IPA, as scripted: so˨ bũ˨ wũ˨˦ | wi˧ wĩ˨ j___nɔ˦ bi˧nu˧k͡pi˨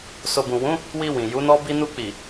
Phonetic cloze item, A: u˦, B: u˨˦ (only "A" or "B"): B